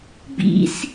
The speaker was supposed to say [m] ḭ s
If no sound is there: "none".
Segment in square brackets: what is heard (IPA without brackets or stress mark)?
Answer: b